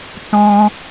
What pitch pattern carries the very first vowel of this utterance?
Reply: high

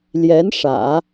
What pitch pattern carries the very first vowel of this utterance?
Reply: rising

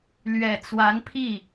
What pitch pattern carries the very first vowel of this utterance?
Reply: low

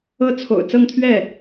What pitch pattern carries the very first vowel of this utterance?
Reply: high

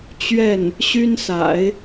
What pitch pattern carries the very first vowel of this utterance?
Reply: falling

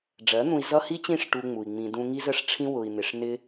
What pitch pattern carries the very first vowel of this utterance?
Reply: rising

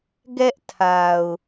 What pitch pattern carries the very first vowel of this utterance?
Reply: high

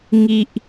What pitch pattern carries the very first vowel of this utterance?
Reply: low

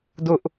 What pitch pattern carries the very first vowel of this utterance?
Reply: high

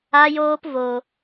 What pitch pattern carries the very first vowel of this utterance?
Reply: high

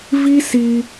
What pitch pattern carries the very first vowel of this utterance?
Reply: high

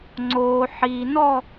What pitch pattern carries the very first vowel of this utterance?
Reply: low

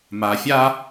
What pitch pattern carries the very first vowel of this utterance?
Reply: low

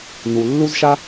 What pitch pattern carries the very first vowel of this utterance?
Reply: low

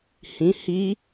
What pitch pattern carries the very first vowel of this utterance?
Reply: rising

